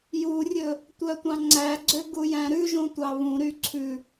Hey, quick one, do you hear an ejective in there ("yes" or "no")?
no